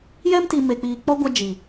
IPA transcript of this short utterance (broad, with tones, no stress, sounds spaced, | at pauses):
j ɛ˦ m t i˧ m e˨ k͡p iː˨ k͡p ɔ˧ ɡʷ a˧ d͡ʒ i˨